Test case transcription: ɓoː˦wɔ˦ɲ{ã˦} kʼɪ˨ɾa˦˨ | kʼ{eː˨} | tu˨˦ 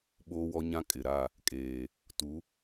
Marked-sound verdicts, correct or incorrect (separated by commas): correct, correct